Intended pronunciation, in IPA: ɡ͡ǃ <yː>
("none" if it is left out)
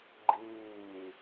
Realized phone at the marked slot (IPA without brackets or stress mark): iː